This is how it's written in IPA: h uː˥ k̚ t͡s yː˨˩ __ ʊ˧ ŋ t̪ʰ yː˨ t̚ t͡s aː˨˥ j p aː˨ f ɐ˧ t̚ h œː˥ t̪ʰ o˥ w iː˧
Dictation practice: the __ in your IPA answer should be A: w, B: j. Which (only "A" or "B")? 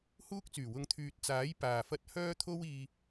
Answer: A